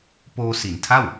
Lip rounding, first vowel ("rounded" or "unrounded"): rounded